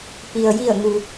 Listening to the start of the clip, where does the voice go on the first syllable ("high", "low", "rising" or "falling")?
low